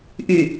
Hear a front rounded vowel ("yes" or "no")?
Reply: yes